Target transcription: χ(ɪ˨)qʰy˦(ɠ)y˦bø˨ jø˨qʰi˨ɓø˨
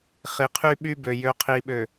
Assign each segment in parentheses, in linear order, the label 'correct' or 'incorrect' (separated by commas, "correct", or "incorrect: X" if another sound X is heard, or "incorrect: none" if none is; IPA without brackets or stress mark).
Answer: incorrect: i˨, incorrect: ɓ